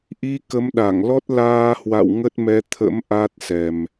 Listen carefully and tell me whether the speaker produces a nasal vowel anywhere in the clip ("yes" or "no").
no